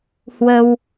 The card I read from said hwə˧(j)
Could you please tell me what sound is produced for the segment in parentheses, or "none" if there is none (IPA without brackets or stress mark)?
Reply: w